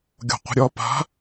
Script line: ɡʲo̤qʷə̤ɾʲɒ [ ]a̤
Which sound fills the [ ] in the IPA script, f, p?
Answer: p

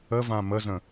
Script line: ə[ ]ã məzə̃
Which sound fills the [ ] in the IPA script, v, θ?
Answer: v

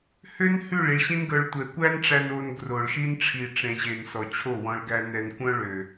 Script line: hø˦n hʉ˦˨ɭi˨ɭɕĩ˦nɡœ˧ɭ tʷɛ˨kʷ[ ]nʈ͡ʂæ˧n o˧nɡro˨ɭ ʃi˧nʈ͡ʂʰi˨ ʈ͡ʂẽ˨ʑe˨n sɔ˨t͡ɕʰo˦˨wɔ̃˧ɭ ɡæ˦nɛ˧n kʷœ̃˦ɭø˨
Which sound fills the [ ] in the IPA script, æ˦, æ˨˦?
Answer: æ˦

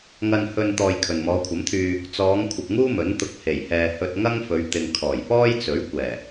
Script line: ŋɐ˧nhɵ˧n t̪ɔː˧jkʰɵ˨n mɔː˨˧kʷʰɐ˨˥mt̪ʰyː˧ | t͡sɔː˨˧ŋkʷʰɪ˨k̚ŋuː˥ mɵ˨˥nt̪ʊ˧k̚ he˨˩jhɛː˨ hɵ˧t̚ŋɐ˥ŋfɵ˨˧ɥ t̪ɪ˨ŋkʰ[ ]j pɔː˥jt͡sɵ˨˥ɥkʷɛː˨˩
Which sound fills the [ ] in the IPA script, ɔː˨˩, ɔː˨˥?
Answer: ɔː˨˩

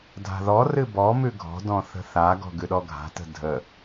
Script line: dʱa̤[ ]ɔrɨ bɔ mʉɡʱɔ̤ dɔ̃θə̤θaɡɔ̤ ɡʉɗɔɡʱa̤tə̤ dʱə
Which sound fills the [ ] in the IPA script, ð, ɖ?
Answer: ð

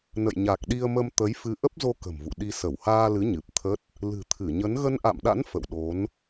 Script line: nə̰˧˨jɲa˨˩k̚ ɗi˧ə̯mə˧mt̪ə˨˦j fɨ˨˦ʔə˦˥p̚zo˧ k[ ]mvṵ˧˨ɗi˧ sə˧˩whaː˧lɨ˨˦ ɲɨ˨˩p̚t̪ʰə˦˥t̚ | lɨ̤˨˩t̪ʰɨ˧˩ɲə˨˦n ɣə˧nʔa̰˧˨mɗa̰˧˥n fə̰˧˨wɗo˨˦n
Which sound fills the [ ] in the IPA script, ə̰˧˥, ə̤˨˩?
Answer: ə̤˨˩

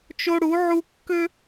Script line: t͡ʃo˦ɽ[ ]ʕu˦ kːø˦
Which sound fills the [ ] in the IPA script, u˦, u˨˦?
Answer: u˨˦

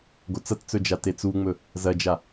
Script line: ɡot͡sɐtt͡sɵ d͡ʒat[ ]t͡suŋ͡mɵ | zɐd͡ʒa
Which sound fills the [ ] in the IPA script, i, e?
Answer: e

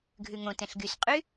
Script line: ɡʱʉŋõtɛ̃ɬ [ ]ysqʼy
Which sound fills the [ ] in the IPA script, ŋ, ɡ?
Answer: ɡ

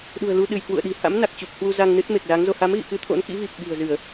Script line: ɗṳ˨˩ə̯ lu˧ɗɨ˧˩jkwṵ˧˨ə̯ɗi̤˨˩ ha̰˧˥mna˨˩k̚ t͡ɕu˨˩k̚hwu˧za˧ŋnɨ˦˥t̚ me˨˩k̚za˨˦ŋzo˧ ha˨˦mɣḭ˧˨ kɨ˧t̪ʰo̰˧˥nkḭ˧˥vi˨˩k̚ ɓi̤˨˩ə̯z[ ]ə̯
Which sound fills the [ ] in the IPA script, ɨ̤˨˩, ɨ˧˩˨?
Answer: ɨ˧˩˨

